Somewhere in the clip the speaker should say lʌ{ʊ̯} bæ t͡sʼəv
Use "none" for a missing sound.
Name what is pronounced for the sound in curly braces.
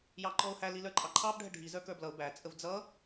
ʊ̯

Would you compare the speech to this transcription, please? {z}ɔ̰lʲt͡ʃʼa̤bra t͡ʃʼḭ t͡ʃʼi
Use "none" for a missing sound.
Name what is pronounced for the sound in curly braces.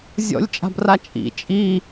zʲ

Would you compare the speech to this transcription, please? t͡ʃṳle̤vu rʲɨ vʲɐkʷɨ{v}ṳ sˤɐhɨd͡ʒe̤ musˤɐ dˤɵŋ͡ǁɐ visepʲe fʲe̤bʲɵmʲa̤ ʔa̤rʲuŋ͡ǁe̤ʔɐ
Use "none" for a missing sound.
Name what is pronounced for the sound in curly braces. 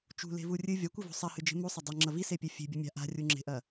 v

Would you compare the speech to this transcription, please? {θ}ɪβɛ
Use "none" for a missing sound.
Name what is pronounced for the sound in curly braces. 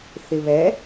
θ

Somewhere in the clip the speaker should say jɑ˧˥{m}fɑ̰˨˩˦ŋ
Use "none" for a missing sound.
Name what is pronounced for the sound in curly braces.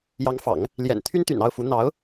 ŋ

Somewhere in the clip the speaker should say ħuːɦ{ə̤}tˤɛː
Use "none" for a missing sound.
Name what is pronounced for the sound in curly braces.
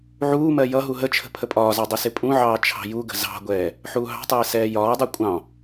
ɑ̤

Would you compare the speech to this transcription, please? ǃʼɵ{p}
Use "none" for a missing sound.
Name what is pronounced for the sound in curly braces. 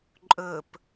p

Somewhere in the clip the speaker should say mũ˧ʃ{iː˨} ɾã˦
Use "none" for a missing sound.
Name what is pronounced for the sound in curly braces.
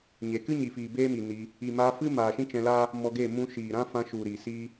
iː˨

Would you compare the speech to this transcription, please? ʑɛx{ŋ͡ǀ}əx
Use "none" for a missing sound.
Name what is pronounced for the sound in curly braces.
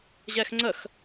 ŋ͡ǀ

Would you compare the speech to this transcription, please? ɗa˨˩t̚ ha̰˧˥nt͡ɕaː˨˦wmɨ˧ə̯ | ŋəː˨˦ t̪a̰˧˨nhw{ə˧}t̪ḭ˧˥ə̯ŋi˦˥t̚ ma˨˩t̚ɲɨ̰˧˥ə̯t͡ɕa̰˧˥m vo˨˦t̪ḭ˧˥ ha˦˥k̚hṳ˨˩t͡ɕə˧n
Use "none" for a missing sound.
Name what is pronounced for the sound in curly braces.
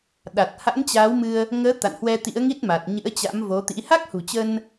ɛ˧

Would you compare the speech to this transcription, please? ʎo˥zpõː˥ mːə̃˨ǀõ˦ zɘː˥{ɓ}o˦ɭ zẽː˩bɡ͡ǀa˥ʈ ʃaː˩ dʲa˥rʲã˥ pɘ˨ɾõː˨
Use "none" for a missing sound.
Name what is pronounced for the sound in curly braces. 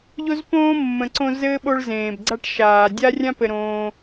ɓ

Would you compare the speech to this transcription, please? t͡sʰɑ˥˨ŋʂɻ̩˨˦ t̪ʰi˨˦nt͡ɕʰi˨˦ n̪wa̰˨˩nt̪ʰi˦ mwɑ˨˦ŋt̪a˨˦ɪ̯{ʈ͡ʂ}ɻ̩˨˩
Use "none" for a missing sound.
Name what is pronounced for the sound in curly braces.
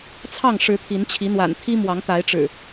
ʈ͡ʂ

